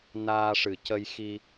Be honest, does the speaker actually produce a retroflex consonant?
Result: yes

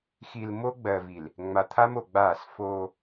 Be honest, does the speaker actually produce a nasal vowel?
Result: no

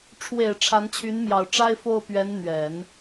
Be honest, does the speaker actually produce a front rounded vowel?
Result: yes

